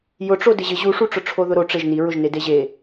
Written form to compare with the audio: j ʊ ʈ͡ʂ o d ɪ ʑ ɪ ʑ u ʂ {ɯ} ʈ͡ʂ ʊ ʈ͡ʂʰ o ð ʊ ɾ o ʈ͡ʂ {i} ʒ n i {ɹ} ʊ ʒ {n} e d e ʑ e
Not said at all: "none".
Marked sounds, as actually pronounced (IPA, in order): u, e, ɹ, n

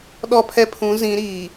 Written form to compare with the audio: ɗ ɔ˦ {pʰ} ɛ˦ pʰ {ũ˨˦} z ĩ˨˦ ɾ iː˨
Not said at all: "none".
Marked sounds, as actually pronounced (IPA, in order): pʰ, ũ˨˦

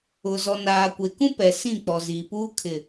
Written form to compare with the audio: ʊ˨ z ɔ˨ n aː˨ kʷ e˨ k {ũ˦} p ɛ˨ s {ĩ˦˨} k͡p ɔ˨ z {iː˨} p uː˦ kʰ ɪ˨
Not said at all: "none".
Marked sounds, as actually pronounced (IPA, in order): ũ˦, ĩ˦˨, iː˨

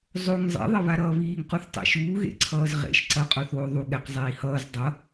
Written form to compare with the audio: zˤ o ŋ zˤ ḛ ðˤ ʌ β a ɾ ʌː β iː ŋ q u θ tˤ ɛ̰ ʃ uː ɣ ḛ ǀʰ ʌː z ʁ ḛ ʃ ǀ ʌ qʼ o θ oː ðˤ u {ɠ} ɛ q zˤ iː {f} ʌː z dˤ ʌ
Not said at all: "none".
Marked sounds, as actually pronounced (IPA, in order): ɠ, h

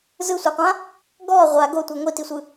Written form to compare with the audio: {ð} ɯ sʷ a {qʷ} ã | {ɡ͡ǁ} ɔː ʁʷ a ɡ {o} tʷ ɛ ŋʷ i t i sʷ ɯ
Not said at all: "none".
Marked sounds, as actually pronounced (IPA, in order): z, qʷ, ɡ, o

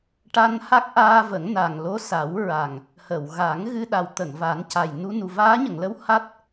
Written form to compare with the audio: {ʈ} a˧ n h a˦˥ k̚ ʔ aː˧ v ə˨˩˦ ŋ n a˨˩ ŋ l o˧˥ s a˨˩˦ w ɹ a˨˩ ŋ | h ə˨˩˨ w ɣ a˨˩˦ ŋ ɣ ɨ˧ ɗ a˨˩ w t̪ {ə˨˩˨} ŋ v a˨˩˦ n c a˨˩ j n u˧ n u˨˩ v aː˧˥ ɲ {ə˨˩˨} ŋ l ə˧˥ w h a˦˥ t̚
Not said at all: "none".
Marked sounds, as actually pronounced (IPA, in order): ʈ, ə˨˩˨, ə˨˩˨

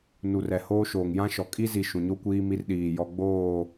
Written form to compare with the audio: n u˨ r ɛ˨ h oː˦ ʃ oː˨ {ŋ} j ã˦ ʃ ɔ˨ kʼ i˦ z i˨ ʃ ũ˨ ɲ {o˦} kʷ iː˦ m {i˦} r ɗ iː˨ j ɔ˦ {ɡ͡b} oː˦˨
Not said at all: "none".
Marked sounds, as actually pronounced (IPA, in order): ŋ, o˦, i˦, ɡ͡b

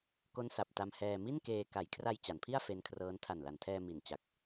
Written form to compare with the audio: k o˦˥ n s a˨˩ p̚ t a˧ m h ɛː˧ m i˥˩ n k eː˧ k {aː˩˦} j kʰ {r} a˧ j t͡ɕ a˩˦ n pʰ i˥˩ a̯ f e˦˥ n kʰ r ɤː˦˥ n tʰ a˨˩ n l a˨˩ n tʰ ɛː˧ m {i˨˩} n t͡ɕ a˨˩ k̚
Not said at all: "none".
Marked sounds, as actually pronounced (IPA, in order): a˩˦, r, i˨˩

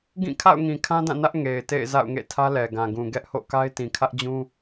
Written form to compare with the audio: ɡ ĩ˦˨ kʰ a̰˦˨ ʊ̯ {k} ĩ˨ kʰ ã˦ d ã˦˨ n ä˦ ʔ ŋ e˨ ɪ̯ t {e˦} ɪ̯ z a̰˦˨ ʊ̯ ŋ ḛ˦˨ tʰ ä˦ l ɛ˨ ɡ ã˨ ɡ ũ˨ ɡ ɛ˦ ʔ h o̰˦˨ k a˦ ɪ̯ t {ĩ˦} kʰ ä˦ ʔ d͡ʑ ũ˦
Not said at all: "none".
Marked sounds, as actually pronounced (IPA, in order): ŋ, ḛ˦˨, ĩ˨

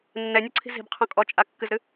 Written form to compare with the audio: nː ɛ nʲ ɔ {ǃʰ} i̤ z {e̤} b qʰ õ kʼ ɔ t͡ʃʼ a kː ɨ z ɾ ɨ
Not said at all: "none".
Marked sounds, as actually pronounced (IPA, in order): ǀʰ, i̤

